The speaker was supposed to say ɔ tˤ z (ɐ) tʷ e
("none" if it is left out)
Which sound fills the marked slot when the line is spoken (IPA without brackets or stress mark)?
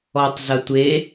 ɐ